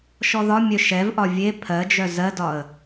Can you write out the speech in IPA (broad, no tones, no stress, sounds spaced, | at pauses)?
ʃ ɔ ð ɒ mʲ œ ʃ ɛ v ʔ ɒ vʲ e pʰ ɜ d͡ʒ œ z ɜ d ɒ ə̯